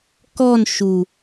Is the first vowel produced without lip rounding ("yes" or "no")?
no